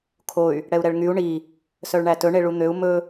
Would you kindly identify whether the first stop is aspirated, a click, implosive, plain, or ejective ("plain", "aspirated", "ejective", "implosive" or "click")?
aspirated